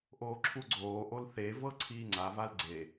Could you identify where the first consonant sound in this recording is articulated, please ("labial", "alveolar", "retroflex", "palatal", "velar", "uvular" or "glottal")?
glottal